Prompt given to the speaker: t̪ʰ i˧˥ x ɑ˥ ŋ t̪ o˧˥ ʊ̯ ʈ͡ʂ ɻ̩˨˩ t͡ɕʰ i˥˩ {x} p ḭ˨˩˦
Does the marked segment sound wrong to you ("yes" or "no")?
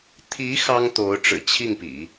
yes